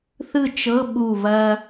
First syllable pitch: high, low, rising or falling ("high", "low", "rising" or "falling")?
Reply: falling